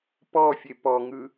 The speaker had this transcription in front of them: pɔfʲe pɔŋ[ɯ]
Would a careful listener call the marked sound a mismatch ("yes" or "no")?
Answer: no